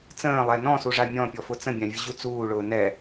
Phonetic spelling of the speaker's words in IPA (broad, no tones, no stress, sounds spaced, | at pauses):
t͡s ə̃ː lˠ ɛ n ɔ̃ s u ʐ a mʲ ɔ̃ pʲ ɔ f ʊ t͡s ə̃ bʲ ã vʲ ʊ ʑ u t͡s uː ɭ ʊː n ɛ